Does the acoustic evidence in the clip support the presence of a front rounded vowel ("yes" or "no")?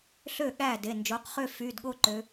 yes